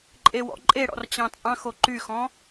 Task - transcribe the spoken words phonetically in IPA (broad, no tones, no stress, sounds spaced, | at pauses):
ǃʼ e w ɔ̰ ǃʼ e ɽ ɔ̰ r t͡ɕ ɑ̃ t͡sʼ ɑ̃ x o ǃ y x ɔ̃